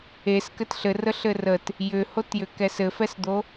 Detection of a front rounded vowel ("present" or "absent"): present